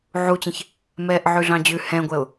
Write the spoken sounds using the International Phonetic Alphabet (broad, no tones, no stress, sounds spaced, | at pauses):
ʕ u t͡ɕ ɛ̃ ç | m ɛː ʔ ʕ ʉ ɮ ɑ̃ d͡ʑ ʉ h ɛ̃ ɡʷ ɛ ʊ̯